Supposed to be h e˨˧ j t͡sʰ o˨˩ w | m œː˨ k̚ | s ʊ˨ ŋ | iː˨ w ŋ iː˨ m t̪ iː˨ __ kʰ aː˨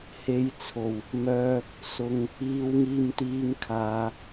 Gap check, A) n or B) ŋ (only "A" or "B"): B